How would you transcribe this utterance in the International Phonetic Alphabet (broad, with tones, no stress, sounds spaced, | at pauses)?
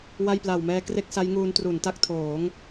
w a˥˩ j p l a˨˩ w m ɛː˧ k r e˥˩ k̚ s a˦˥ j ŋ uː˧ n t r u˩˦ n t a˦˥ k̚ tʰ oː˩˦ ŋ